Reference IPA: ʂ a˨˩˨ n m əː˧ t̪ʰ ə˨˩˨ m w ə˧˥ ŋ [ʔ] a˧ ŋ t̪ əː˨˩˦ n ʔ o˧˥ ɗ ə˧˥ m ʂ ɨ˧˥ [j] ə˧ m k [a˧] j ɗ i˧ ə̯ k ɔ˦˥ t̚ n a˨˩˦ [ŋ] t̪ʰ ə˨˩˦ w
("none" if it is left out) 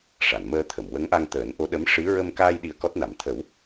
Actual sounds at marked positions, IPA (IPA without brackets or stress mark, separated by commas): ʔ, ɹ, aː˧, m